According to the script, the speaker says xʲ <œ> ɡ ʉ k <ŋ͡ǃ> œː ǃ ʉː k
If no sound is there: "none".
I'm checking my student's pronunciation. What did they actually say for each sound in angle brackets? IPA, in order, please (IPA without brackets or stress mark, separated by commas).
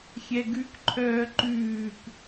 ɛ, ǃʰ